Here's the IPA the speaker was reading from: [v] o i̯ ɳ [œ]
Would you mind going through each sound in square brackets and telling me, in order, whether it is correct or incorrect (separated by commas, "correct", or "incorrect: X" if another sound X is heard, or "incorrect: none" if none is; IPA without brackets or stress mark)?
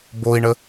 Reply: incorrect: b, incorrect: ə